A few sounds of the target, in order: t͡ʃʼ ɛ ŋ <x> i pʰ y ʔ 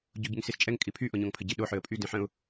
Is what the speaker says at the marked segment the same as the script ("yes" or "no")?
no